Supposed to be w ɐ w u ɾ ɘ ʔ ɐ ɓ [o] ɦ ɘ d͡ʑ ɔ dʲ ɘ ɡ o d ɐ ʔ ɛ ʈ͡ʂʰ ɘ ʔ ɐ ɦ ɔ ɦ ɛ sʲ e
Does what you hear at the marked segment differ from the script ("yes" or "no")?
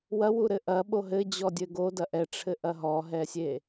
no